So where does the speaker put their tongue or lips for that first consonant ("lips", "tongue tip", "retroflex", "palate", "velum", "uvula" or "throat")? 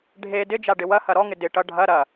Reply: retroflex